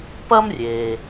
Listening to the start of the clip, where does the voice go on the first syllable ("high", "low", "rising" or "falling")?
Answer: high